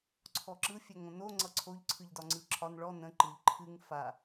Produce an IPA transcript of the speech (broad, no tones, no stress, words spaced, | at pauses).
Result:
ǀʰɔǁɯ fʲɛŋõno ŋ͡ǀʌǀʰoʎ ǀʰɯʎdɒŋ͡ǀɯǁʰɒn ɭɔ nə̃ ǃɯʎ ǃʰɨŋ fa